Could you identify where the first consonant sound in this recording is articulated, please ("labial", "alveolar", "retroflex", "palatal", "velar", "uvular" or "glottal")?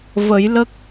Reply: labial